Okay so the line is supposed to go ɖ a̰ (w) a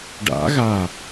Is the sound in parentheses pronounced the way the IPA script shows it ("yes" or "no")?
no